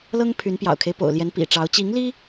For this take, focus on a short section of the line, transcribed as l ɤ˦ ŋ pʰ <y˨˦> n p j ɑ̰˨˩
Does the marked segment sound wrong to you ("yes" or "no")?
no